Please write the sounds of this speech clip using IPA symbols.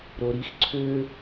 ɾoɾix ǀʰø

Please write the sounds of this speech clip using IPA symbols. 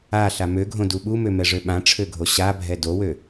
a ɬamøɡʱõ duɓumømɛ ʐøɓãʈ͡ʂʰøɡʱo ɕabʱɛ dowø

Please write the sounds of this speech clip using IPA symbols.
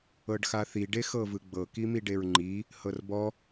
ɤɖxaθi ɖexɤvɯɡ͡bɤ kimiɖeɹŋ͡ǃi | hɤrbɔ

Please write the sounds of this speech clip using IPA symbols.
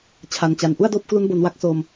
t͡ɕʰa˧nt͡ɕa˧n ʔu˥˩a̯doː˥˩p̚klu˦˥n bo˧nwa˦˥k̚soː˧m

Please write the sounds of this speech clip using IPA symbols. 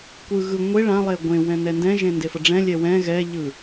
kʷɯ ɣɯ ŋʷe ɭãlˠe ɡʷẽwɛ̃ nɛndɛ̃ʒẽ ndefʌɖ͡ʐɛ̃lʲɛ wɛ̃ ɣɛʎɯ

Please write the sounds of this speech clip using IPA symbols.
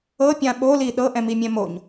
ɤpʲã ɓoli ɗɤʔɛ̃mimʲɛ̃ moɲ

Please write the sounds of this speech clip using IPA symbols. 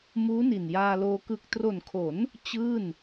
muː˦˥ni˨˩njaː˧loː˧ kɯ˨˩k̚tro˨˩nkʰo˩˦n | t͡ɕɯː˥˩n

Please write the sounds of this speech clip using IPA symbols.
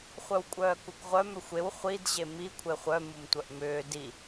χʷœwkʷʼœːkukʁʷœm ʏxʷew χʷid ʑemi kʷʰeχʷœ mumtʷœʔmʏː di

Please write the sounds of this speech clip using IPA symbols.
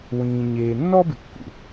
wĩː˨ɲeː˨ nːɔː˥bɪ˨kːṵ˩

